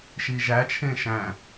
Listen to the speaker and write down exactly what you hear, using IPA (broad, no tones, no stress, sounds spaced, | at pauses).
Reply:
ʃ i ʒ æ t͡ʃʰ ẽ ʃ æ̃